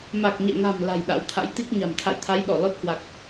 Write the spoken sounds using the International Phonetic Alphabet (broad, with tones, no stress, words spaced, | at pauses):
ma˨˩k̚ɲɛ̰˧˨ŋa̤˨˩m la̤˨˩j ɗa̰˧˥wt̪ʰa̰˧˥jt̪i˦˥k̚ ɲa̤˨˩mt̪ʰa̰˧˨jt̪ʰa˨˦j ɗɔ˧˩lɔ˦˥t̚hwa˨˩k̚